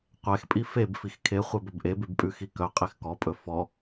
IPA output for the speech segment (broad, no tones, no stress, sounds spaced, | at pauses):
qʷ ɛ x pʼ i f e b f i x kʰ e χʷ ɛ b ɵ b ʔ e b ʉ b pʼ ʉ x i k œ qʼ e x k ɔ pʼ ɵ f ɔ